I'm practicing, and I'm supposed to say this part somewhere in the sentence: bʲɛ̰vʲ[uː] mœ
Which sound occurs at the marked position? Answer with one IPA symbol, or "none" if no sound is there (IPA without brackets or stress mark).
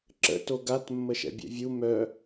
u